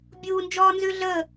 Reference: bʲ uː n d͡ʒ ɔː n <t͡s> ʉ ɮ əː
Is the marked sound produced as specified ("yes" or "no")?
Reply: no